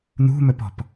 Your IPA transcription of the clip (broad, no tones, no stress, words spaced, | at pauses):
n̪ṳmɵpɔ̤p